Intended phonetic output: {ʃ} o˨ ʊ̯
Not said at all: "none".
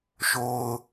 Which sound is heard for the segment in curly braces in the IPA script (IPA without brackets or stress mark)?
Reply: ʃ